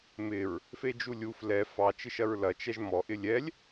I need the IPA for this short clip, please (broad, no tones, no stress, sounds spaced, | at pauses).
m ɪ ɹ | f e d͡ʒ u lʲ u f l ɛ f ɑ t͡ʃ ɪ ʃ ɐ ɹ l ɐ t͡ʃ ɛ ʒ m ɔ ʔ ɪ lʲ ɛ lʲ